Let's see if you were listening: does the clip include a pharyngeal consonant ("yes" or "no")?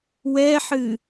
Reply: yes